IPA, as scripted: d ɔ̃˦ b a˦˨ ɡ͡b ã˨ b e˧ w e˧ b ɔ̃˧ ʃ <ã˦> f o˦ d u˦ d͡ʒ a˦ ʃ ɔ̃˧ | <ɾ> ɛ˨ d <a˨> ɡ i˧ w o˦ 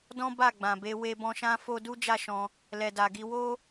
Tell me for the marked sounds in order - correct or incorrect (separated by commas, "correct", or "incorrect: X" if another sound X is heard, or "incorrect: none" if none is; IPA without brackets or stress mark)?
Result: correct, incorrect: l, correct